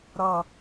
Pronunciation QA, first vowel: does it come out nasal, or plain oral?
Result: oral